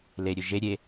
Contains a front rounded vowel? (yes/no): yes